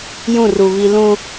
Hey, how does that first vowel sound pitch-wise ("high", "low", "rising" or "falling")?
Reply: falling